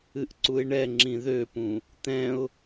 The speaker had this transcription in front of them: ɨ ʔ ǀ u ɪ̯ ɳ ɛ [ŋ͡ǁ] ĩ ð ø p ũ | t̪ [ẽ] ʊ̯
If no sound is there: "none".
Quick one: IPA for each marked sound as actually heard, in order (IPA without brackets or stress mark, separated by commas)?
ŋ͡ǁ, ɛ̃